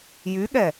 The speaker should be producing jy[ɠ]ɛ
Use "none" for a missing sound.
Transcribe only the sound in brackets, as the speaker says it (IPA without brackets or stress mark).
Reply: ɠ